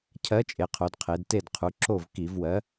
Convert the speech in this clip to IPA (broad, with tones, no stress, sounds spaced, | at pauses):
cʰ ɜ˨˥ t͡ʃʼ e˩˧ qʰ o˩˧ d qʰ e˩˧ d t e˧˩ d qʰ u˩˧ ǁ o˧˩ v k i˧˩˧ v w ɜ˨˥